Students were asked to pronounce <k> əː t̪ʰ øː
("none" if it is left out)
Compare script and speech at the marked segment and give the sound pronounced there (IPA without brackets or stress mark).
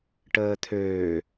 ʈ